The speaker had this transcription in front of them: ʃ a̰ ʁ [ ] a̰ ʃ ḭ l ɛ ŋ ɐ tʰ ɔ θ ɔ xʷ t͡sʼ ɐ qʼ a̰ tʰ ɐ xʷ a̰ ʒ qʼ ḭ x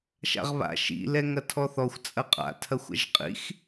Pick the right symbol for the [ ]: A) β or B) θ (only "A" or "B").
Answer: A